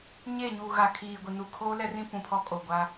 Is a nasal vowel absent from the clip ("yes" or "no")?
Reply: no